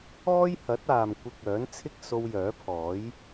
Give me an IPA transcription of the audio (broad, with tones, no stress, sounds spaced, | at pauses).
ɔː˥ j h ɐ˨˥ t̚ aː˨ m kʷ ɪ˧ k̚ œː˨˥ n t͡sʰ ɪ˥ k̚ s o˧ w j œː˨˥ pʰ ɔː˨˥ j